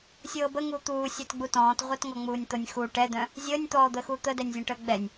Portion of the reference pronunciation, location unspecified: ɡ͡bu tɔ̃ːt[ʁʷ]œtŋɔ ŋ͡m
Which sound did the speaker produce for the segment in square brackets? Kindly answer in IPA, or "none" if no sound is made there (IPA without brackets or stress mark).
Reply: ʁʷ